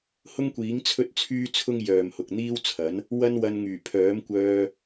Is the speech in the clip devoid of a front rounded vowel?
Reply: no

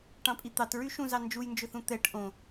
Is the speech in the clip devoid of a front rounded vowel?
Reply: no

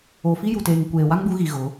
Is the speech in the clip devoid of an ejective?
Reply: yes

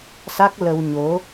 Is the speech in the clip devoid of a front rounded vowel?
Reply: yes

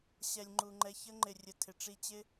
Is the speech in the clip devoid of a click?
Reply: no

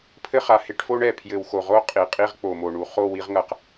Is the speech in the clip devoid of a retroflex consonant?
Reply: no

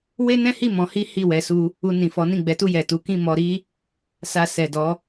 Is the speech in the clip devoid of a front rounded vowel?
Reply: yes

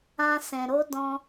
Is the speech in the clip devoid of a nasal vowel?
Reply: no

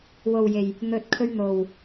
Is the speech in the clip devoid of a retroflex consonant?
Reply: yes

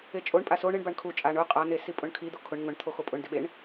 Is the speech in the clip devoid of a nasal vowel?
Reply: yes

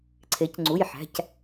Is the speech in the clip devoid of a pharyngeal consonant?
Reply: no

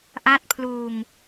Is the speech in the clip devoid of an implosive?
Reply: yes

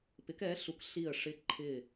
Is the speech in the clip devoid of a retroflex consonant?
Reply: no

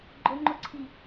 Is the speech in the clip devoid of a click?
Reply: no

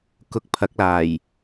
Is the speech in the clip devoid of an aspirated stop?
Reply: no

